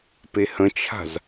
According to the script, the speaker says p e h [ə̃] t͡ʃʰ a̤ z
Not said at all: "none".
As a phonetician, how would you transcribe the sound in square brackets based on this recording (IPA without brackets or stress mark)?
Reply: ə̃